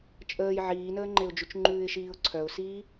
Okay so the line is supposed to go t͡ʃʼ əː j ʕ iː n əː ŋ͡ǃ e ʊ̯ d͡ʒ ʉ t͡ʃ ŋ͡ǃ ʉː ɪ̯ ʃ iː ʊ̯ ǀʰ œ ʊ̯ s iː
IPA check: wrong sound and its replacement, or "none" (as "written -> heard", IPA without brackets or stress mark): none